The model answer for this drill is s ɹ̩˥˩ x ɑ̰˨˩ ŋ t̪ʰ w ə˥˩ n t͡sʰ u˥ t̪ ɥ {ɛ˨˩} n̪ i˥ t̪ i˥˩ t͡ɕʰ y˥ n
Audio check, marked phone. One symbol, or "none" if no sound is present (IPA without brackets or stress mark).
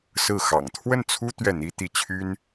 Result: ɛ˥˩